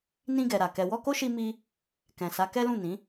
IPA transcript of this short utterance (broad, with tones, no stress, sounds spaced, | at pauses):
n ĩ˧ ɡ ɛ˨ ɾ a˨ k ɛ˨ w ɔ˧ k o˦ ʃ i˧ m i˧ | k ɛ̃˨ s a˨˦ k ɛ˦ l ũ˦˨ n ĩ˨˦